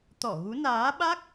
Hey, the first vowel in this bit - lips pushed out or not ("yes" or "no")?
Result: yes